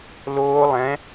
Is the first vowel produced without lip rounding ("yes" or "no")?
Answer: no